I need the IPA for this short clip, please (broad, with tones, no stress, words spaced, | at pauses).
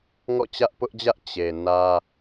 ŋɔ̰˦˨t͡ɕä˦ʔpʊ˦ʔd͡ʑä˦ʔ t͡ɕe˨ nä˦